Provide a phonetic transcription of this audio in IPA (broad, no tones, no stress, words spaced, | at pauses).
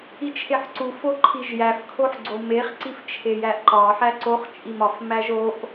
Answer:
it͡ʃʰeħǀu foǃʰiʒjæf kʰoħɡ͡ǀomeχ ǀift͡ʃʰejæʔǃɒ ħæǀoχ t͡ʃʼimɒf mæʒoʔ